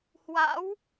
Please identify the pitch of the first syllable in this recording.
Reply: rising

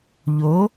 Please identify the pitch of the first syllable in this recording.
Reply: rising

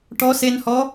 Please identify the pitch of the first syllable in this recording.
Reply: rising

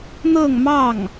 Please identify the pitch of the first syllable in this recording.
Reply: falling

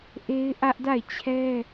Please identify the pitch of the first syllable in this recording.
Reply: high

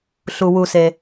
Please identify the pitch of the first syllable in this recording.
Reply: low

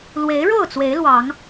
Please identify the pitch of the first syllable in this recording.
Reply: rising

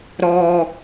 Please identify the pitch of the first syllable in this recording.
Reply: low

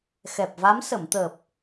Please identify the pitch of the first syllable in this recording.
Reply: low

